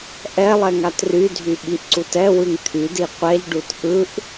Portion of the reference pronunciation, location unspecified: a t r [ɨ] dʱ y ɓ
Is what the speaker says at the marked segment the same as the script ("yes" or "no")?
no